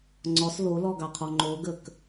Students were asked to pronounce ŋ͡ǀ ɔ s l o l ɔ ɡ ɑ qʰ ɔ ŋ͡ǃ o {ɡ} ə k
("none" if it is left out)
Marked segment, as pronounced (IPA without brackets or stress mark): ɡ